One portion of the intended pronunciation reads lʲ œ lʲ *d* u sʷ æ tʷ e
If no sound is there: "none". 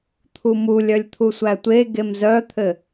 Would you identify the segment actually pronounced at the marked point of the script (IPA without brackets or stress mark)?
t̪ʰ